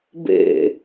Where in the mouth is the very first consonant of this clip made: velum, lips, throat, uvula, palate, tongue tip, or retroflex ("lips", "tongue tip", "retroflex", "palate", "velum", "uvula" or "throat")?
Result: lips